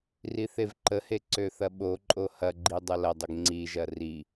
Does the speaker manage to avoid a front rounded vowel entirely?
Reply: no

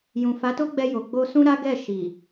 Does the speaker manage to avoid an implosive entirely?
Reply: yes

